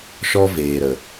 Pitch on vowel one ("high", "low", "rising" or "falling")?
high